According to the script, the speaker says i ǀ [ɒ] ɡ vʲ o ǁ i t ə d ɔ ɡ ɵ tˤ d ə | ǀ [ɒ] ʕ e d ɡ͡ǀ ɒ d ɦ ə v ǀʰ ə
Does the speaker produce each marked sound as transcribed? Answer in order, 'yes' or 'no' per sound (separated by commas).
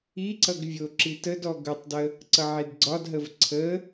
no, no